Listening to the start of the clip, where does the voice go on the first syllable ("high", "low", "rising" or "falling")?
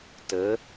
rising